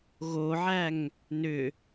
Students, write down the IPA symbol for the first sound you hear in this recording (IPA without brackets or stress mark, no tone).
ɣ